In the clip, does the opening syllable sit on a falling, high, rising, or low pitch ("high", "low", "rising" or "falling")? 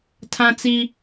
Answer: high